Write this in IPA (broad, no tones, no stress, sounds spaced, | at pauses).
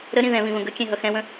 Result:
ɾ ə ɾ ĩ ð ɛ̃ β ĩ v ə̃ ɡ ə kʲ ɛ̃ ɦ ʌ x ɛ̃ w ə̃